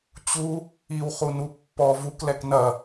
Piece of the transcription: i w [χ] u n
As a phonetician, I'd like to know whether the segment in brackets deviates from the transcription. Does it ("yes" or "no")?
no